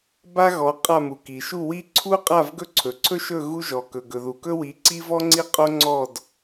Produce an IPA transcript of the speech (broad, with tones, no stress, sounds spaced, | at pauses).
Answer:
b a˥ ɣ ɔ˨˦ qʼ a˥˨ m u˩ k i˩ ʃ u˥˨ w i˥ ǀʰ u˥ qʼ a˥˨ v ɡ ɵ˥˨ ǀʰ ɵ˩ ǀʰ ɵ˥ ʃ ɵ˥˨ ɣ u˥ ʒ ɔ˩ k ɵ˩ ɡ ɵ˩ ð u˩ k ɵ˥ w i˨˦ ǀ i˥ v ɔ˥ ŋ͡ǀ i˥˨ qʼ o˥ ŋ͡ǀ ɔ˥˨ d